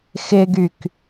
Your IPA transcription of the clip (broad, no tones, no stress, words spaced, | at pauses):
xɪɡyk